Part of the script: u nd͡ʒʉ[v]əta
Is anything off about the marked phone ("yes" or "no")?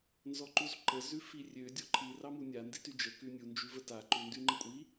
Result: no